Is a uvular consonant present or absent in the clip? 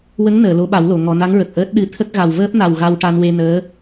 absent